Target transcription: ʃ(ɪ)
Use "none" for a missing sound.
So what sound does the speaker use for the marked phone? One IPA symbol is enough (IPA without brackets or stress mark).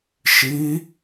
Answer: i